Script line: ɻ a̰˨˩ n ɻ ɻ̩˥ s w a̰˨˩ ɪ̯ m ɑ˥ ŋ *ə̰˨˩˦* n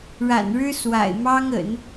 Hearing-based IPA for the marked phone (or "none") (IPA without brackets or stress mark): ə̰˨˩˦